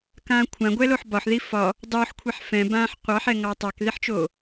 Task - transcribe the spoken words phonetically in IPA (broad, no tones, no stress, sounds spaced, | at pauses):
k ãː kʷʰ ã ɡʷ ɛ l o ħ b ɒ ħ ð i f ɒ | dˤ oː ħ kʷʰ ɛ ħ f ɛ̃ b ãː ħ qʷ ɑ ħ ɛ ŋ ɑ tˤ ɑ k ð i ħ t͡ʃ oː